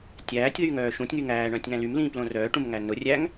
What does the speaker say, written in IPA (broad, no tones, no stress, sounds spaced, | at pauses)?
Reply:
tʲ æː tʲ ð yː ŋ œː ʃ ũ tʲ ŋ y ŋ æː ɳ œ̃ tʲ ŋ æ̃ l y m l ĩː p l õ r œː ʈ ũ m ŋ æ n ʊ rʲ æ ŋ